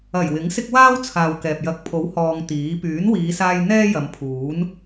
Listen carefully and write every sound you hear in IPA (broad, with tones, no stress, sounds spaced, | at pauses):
ɐ˨˩ j w ɪ˨˥ ŋ s ɪ˥ k̚ w aː˥ w t͡sʰ aː˨ w k ɛː˨ p̚ j ɐ˨˥ k̚ pʰ o˨˥ w h ɔː˧ ŋ t̪ iː˨˥ p yː˨˥ n w iː˨˧ s aː˧ j n̪ ɛː˥ j ɐ˨˧ m pʰ uː˨˥ n